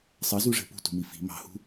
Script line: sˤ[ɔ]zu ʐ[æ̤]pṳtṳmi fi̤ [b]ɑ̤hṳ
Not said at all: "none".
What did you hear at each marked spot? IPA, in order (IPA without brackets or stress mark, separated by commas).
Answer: ʌ, ɛ̤, m